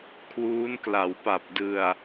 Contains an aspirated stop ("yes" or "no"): yes